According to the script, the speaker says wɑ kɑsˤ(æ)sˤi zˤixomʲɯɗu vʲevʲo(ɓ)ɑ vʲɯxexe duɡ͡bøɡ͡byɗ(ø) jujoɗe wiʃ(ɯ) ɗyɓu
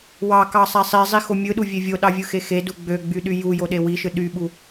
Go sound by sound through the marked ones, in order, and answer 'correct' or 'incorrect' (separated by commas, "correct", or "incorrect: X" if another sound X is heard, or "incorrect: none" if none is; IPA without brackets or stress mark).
correct, incorrect: ɗ, incorrect: y, correct